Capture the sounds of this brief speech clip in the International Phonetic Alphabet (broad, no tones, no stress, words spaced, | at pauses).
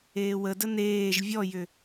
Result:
eːwədə neːʒ vʲɔjʏ